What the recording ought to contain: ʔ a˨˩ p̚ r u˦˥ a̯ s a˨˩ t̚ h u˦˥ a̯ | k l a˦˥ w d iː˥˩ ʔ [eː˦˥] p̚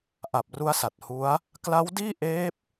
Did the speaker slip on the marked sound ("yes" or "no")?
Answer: no